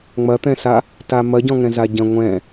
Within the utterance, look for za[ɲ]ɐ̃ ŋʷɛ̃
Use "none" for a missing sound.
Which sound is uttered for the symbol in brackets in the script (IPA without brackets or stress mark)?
ɟ